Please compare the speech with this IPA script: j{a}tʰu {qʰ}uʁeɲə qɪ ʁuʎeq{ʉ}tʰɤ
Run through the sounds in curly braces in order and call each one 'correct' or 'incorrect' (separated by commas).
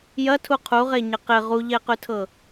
incorrect, correct, correct